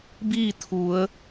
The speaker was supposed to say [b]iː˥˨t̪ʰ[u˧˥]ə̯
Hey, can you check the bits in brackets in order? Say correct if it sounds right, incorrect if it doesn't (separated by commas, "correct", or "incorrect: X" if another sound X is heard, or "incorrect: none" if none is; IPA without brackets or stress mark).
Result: correct, incorrect: u˩˧